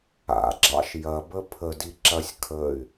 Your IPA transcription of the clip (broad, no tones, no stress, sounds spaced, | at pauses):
a̰ ɡ͡ǁ ɑ̰ ʃ j ɐ b ə pʰ ə d i ǁ ɐ sʲ kʰ ə y̯